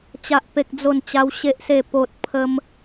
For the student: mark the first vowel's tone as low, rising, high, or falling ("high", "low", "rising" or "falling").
high